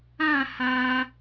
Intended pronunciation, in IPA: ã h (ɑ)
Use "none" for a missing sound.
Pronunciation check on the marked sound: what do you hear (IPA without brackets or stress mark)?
a